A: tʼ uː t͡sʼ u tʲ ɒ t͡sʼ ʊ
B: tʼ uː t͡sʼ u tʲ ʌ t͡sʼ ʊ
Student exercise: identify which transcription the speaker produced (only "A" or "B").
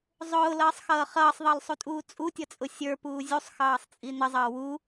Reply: B